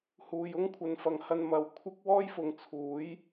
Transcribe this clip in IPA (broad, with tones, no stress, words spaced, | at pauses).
huː˨j ʊ˥ŋkʷʰɐ˨nfɐ˨ŋ hɐ˧nmɐ˨˧w kʷʰɪ˥k̚ wɔː˥jfʊ˨˧ŋ t͡sʰuː˨˥j